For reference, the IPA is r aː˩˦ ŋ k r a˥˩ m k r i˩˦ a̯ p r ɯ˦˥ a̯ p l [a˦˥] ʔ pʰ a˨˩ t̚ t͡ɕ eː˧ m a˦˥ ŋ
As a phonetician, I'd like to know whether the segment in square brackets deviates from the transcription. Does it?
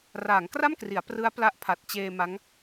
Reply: no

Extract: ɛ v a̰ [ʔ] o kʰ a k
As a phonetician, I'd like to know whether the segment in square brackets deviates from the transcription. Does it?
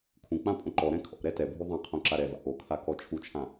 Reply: no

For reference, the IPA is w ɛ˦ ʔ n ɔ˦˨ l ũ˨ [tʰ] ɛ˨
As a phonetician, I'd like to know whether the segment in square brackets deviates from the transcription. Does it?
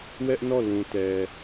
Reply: yes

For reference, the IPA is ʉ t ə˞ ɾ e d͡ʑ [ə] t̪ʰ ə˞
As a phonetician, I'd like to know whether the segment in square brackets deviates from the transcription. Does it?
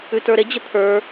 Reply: no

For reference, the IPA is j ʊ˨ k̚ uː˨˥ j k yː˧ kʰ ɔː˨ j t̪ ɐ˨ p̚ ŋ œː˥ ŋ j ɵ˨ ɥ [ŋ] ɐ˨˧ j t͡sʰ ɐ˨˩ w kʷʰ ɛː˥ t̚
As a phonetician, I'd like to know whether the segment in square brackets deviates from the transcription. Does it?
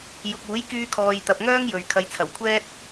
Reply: yes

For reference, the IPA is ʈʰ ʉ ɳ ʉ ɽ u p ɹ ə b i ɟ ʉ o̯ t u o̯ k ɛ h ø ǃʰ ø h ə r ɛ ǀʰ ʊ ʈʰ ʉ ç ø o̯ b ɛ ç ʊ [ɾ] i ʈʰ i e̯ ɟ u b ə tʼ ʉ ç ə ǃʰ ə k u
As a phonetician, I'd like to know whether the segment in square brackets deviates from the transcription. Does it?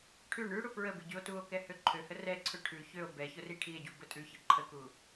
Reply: yes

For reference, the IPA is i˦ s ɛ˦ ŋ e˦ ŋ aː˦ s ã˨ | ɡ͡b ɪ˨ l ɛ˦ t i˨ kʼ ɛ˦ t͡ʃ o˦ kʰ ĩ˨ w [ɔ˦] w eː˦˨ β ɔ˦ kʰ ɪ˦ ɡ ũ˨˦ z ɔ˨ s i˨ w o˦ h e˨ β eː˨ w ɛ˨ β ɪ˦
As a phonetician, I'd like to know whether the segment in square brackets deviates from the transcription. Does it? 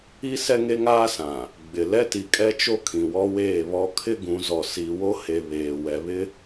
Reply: no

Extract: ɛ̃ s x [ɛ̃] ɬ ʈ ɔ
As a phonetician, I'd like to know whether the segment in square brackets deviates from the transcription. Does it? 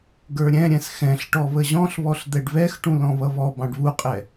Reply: no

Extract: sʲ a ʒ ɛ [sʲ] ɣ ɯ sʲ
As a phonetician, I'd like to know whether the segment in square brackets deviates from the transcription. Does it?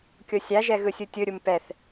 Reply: yes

